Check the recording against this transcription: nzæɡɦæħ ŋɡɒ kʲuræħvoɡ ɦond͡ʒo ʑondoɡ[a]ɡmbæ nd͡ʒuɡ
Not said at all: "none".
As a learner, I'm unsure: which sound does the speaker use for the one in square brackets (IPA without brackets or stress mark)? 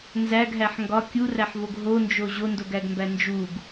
æ